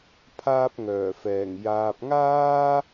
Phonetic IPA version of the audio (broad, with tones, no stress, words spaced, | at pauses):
pʰaː˥p̚ŋœː˨˩fɛː˨˩ŋ jaː˨p̚ŋaː˥